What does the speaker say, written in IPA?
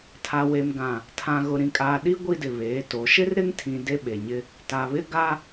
tʰ a˨ w e˨ m ɡ ã˨ | tʰ ã˨ ɣ ʊ˨ ɾ ĩ˨ kʼ aː˨ ɗ i˦ ɡʷ i˦ d ɪ˨ β eː˨˦ t o˨˦ ʃ ɪ˦ r ɾ ɪ˦ ŋ tʰ ĩ˨ d e˦ ɓ e˨ ɲ ɪ˦ | t a˨ β ɪ˦ ɡ a˦

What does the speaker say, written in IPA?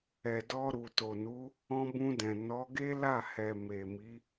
ɛ˨ d ɔ˧ ɾ u˨ t o˨ n u˨˦ | ɔ̃˧ b ũ˧ d ɛ̃˨ n ɔ˨˦ ɡ e˦ l a˦˨ h ɛ˨ m e˨ m i˨˦

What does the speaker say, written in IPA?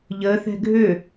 ʎ əː θ ɛ̤ ɡʱ ø

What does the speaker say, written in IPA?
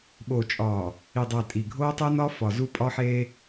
ɓ oː˨ t͡ʃʼ ɒː˨ | i˨ dˤ æ˨ tʼ i˨ ɡʱ oː˦ tˤ e˦ n ɒ˦ f ɒ˨ z u˦ pʼ ɒ˦ ħ eː˦

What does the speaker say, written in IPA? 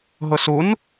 ɦ ʊ s u n

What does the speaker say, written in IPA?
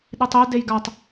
ɗ i tˤ i d e j ɡ a tˤ

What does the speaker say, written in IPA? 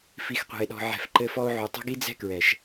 f i˨ x qʷ ɛ̤˨ e̯ ɗ ɔ̤˨ ʕ ɛ̤˨ f ǃ ɘ˧ f ɔ˧ o̯ ʕ u˨ tˤ ɛ̤˦ ɡ i˦ d͡z ɛ̤˦ k ɹ ɛ˨ ʃ

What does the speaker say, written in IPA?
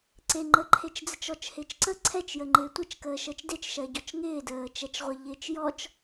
ǀ e ŋ͡ǃ ə ǃʰ e t͡ʃ d͡z ə t͡ʃ ɔ t͡ʃ h ɪː t͡ʃ ǀ ə ǀʰ ɛ t͡ʃ j ə ŋ͡ǃ ɪː tʷ ɪ t͡ʃ k əː ʃ əː t͡ʃ d e t͡ʃ ʃ ɜ ɟ ɔ t͡ʃ ŋ ɪː d əː t͡ʃ ɛ t͡ʃ ʁʷ ə ʎ ɪː t͡ʃ j ɔ t͡ʃ

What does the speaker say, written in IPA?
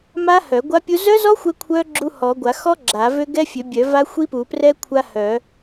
m a˦˥ h œ˨˩˦ ɡʷ a˦˥ pʲ u˦˥ z œ˦˥ z ɔ˦˥ xʷ ɛ˦˥ kʷʰ œ˦˥ ɡ͡ǁ u˦˥ h ɔ˨˩˦ ɡʷ a˨˩˦ x ɔ˦˥ ɡ͡ǁ a˨˩˦ v ø˦˥ ɡ ɛ˦˥ fʲ ø˨˩˦ bʲ œ˨˩˦ v a˦˥ xʷ i˦˥ p u˨˩˦ p r ɛ˦˥ kʷʰ a˦˥ h œ˨˩˦

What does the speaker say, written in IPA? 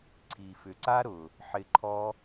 ǀʰ i˨ f ʏ˨ ǀ a˦ ɾ ʊ˨ | ħ ɪ˧ ǃʰ ɔ˦

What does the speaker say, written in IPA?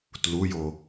t l u j o

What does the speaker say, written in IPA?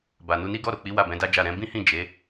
b a˨ n u˧ n i˦ ɡ ɔ˦˨ ɾ o˨ k͡p i˨˦ w a˦˨ b ɛ̃˨˦ d a˦ d͡ʒ a˦˨ ɾ ɛ̃˨˦ b ĩ˦ h ĩ˦˨ d͡ʒ e˨˦

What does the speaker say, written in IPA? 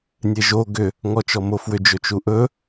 nʲ e ʒ o ɡ ʏ | ŋ ɔ t͡ʃ ɔ m o f w ʏ d͡ʒ ɵ t͡ʃ u ʔ ɵ

